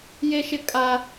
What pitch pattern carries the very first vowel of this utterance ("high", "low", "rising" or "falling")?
high